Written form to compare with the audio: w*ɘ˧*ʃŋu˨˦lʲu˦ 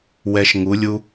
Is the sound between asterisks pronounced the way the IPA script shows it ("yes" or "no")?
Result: no